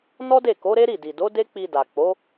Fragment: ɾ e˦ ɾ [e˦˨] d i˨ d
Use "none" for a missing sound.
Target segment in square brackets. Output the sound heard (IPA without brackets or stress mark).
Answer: i˦˨